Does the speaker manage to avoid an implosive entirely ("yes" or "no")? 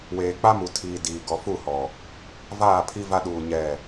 no